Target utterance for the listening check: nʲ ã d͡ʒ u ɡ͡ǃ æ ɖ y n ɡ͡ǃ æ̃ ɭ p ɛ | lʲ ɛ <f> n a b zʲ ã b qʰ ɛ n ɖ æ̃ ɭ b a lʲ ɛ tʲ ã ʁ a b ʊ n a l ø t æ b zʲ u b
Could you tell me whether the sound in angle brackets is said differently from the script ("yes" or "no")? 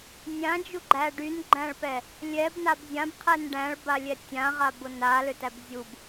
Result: yes